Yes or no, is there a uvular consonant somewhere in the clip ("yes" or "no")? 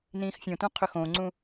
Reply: yes